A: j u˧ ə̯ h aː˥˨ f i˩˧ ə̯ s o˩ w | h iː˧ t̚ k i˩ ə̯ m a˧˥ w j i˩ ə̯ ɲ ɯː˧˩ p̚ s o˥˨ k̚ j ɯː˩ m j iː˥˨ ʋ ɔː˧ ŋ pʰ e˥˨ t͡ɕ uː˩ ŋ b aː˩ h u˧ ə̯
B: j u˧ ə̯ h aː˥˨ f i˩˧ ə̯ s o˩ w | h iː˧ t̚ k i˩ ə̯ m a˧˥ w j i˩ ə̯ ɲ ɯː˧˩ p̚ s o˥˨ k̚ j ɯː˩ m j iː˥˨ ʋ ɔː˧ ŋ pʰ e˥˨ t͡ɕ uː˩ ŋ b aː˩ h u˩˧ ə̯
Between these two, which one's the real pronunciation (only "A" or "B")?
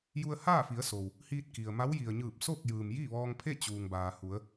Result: B